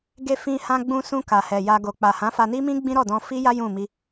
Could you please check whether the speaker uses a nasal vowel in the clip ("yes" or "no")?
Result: yes